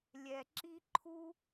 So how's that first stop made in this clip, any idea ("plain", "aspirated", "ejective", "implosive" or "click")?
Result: click